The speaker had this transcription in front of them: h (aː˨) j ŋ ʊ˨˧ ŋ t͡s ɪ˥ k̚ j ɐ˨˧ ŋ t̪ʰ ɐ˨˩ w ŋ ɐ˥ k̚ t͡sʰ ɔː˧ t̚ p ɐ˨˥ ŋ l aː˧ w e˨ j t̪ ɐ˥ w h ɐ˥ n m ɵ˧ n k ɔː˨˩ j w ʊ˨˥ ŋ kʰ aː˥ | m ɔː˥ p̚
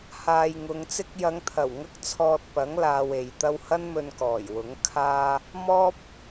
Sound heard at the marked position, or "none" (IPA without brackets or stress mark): aː˨